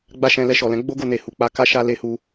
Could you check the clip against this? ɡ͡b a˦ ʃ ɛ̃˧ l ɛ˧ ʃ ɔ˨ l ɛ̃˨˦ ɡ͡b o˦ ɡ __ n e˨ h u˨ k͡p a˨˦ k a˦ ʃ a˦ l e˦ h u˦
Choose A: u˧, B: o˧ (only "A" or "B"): B